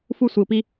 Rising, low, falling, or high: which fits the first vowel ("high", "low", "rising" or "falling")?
high